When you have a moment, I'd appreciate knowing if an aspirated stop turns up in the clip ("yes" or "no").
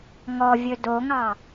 no